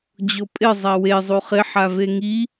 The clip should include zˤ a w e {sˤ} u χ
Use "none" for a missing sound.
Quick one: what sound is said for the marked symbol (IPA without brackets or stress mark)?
zˤ